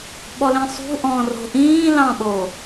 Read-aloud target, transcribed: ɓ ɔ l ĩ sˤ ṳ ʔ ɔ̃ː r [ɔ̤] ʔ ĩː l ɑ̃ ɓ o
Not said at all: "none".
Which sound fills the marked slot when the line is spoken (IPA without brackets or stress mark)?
o̤